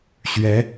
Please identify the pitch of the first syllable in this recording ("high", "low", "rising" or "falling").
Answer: rising